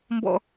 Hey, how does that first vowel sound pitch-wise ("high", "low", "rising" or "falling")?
high